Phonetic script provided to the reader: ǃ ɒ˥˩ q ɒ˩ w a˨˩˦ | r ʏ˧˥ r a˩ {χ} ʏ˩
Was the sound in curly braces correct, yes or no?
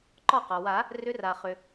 yes